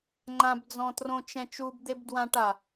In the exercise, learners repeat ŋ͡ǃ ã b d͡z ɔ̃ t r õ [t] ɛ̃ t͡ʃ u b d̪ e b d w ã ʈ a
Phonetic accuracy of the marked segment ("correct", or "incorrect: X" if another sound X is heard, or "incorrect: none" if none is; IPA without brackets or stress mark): incorrect: t͡ʃ